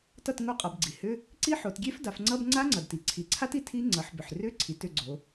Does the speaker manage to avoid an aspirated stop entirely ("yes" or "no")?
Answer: no